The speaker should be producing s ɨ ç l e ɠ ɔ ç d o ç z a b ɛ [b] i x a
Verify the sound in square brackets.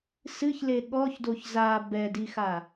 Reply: incorrect: d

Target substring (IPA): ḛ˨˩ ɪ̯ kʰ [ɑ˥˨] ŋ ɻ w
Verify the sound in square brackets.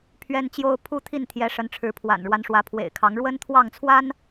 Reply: incorrect: ɑ˨˦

